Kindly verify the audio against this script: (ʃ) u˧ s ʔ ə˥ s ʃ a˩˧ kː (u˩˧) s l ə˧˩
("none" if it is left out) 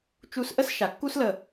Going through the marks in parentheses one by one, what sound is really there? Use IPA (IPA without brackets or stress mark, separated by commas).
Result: t͡ʃ, u˥